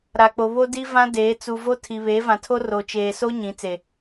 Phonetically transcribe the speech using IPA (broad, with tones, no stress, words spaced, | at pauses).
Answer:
ɾa˨k͡po˨ βo˦ di˦vã˦deː˨˦ t͡su˨vo˦ tʰi˨ βeː˨˦vã˨tʰo˦ ro˨ t͡ʃeː˨so˦ ɲĩ˨˦t͡se˨